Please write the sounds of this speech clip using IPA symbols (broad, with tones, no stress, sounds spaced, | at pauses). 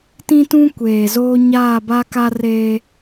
t ĩ˦ t ũ˦ kʷ eː˨ z oː˦ ɲ aː˦˨ b a˦ k a˦ r eː˦